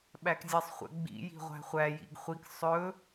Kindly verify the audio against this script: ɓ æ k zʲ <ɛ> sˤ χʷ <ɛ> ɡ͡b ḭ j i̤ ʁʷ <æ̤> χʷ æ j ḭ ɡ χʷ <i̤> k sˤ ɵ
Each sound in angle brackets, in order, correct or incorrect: correct, incorrect, correct, incorrect

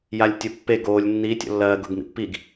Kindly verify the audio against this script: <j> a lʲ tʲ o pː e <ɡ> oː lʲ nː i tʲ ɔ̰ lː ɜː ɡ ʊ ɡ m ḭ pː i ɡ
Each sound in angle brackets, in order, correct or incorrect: correct, correct

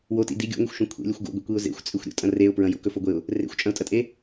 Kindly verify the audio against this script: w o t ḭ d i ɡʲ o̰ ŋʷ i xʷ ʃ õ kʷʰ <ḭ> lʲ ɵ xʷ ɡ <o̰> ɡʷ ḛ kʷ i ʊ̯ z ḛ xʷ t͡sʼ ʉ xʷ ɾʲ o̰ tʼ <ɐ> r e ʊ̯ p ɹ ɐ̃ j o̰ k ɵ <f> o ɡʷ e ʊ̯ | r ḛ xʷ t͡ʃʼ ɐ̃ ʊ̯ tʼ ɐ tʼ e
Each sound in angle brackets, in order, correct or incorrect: incorrect, correct, incorrect, correct

